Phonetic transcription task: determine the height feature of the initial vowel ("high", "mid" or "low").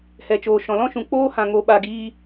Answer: mid